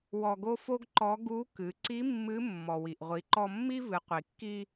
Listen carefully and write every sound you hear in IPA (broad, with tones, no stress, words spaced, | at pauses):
wɔ˧ɡo˥fo˥ɡǃɔ˧˥ ɡu˧˥kɨ˩˧ ǀi˧˥ mːɨ˧˥ mːɔ˩wi˩ʔʁʷi˩˧ǃɔ˧ mːi˥vɨ˩˧ qʷi˩kːi˧